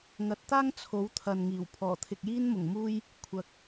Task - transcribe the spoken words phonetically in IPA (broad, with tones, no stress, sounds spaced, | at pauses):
ŋ ɐ˨˥ t̚ t̪ aː˥ ŋ t͡sʰ o˨˥ w t̪ʰ ɐ˨ n ŋ iː˨˩ w pʰ ɔː˨˩ t̪ʰ ɪ˨ k̚ j iː˥ n m ʊ˨˩ ŋ m uː˥ j | kʷʰ ɐ˨˥ k̚